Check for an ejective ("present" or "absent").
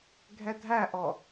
absent